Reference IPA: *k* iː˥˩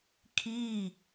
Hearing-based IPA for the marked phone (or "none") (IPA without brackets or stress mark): kʰ